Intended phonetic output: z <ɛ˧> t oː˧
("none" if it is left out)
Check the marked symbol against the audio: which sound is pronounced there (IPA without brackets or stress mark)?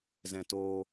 ɛ̃˧